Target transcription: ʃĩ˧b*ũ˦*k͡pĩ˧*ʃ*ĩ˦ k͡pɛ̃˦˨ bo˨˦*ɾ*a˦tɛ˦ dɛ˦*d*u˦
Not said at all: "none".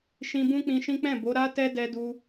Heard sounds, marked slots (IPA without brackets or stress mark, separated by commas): ũ˦, ʃ, ɾ, d